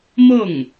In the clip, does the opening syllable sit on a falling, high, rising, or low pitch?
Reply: falling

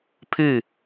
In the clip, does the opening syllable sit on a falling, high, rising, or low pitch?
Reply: falling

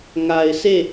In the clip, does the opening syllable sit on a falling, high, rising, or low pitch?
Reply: low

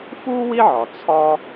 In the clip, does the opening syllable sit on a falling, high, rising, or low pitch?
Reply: high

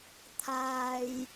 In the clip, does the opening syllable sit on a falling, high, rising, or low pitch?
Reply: low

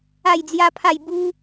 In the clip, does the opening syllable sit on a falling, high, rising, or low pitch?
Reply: falling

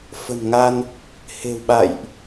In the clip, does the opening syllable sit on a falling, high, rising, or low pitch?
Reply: low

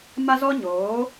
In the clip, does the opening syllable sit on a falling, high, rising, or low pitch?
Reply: high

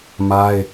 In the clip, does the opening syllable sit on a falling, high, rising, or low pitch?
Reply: high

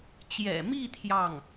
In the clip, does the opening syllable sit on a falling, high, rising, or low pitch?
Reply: low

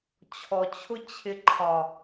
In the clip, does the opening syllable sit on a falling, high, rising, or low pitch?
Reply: low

